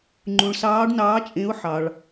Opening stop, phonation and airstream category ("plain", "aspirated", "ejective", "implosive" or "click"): click